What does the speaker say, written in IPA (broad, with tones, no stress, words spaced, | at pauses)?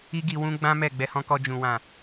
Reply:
i˦ɡi˧wũ˦ ɡ͡bã˦mɛ˦˨ ɡ͡bɛ˧hɔ̃˧kɔ˧ d͡ʒũ˨wã˨